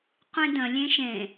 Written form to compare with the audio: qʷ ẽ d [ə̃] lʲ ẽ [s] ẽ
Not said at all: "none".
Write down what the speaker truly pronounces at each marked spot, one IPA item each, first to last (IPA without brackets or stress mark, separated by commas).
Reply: ə̃, ʃ